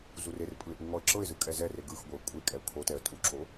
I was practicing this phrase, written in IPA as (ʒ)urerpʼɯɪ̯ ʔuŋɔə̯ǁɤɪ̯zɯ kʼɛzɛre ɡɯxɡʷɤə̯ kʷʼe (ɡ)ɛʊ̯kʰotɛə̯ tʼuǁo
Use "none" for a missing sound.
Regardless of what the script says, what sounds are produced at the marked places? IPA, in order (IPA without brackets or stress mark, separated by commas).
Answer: z, kʼ